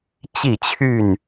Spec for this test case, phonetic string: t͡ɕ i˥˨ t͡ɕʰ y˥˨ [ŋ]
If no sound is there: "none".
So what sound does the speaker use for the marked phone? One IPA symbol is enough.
n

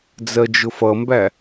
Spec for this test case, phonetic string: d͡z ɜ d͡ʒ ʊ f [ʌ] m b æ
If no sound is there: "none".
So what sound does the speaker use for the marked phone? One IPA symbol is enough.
ʌ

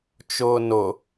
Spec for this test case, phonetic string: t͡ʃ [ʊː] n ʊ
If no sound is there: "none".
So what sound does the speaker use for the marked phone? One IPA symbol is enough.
ʊː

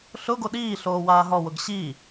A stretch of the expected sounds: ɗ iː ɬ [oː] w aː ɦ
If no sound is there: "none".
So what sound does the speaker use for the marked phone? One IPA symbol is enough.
oː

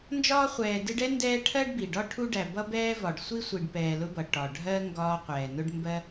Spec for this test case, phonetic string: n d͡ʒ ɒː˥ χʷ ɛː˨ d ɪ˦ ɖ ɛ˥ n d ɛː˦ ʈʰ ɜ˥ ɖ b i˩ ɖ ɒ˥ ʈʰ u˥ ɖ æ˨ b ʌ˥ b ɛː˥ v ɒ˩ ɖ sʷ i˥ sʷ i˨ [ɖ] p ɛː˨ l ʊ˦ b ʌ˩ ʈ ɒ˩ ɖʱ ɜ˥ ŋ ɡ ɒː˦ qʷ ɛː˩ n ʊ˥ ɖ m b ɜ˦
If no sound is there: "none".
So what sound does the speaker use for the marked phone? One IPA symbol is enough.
ɖ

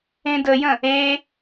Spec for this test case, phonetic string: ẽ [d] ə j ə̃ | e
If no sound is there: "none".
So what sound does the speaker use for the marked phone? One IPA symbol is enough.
d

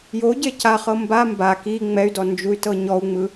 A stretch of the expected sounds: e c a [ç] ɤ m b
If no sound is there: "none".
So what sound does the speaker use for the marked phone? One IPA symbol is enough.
χ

